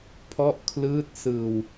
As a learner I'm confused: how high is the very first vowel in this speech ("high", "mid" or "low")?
mid